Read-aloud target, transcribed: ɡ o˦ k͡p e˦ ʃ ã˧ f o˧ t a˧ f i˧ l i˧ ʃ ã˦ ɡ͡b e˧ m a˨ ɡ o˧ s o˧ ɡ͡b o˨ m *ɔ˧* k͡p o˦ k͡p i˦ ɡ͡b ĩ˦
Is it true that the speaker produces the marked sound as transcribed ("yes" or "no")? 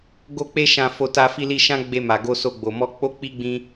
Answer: yes